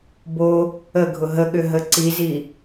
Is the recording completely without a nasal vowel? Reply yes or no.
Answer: yes